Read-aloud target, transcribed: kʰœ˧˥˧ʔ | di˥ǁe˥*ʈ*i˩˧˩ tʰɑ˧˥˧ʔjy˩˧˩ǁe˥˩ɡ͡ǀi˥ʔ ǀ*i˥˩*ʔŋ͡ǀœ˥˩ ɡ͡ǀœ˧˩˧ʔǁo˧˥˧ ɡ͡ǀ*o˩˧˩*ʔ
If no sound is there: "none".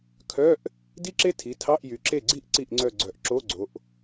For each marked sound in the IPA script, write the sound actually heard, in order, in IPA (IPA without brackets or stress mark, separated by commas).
tʰ, i˥˩, o˩˧